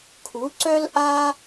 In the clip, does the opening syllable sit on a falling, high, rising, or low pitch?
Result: rising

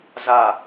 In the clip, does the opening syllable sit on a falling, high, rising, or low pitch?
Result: low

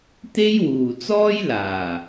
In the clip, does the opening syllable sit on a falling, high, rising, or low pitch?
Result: high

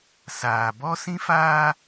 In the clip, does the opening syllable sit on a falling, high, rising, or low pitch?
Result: low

